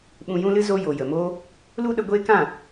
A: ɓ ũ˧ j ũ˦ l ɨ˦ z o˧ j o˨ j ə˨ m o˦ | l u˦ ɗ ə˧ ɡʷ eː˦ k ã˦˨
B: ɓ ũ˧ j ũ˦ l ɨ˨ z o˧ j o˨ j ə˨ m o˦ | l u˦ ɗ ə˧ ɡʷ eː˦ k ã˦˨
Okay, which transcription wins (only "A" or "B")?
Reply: A